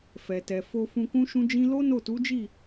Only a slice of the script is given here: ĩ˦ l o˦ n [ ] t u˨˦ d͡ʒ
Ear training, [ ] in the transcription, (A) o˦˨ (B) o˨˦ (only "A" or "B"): A